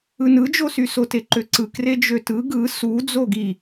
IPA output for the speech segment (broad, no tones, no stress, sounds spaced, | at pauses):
ɯ n ɯ d͡ʒ o s y s o t e ǃ ø ǀ ɯ k r e d͡ʒ ø t ɯ ɡ ɯ s u d͡z o ɡ i